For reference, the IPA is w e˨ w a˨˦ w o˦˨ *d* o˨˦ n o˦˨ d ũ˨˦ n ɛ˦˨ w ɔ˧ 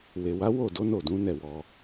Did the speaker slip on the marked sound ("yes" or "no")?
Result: no